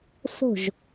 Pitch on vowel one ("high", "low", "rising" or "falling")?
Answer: falling